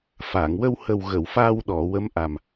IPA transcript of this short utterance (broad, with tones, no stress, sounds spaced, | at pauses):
f a˨˩˨ ŋ w ə˧ w h ə˨˩ w ɣ ə˨˩˨ w f aː˧ w ɗ ɔ˨˩˨ w ə˧˥ m ʔ a˨˩ m